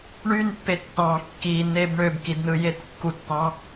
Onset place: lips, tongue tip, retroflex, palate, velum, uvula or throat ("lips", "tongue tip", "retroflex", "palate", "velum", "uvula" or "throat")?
retroflex